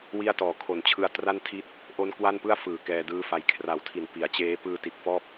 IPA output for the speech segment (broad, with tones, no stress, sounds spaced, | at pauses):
w i˥˩ a̯ t ɔː˨˩ kʰ o˨˩ n t͡ɕʰ ɯ˧ a̯ t r a˥˩ n tʰ i˦˥ t̚ | ʔ o˦˥ n k w a˥˩ n p ɯ˥˩ a̯ f ɯː˨˩ k ɛː˧ d ɯː˦˥ f a˧ j kʰ r a˨˩ w tʰ i˨˩ n p i˩˦ a̯ t͡ɕ eː˦˥ p ɯː˧ t i˨˩ t̚ f ɔː˥˩ p̚